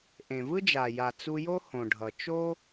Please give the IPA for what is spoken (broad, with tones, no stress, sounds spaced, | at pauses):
ʔ ẽ˨ v ɯ˦ d͡ʒ a˨ j a˨ t͡s u˧ j o˦ h õ˨ ɖʱ ʌ˨ t͡ʃ o˦